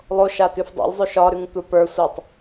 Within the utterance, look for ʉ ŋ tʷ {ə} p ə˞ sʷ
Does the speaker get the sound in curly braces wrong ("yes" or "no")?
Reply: yes